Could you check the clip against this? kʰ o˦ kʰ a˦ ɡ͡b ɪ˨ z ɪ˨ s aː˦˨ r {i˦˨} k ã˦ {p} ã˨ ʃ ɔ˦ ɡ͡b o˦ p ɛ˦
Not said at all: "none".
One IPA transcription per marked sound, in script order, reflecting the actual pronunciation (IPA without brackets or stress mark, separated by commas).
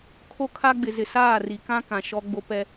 i˨, k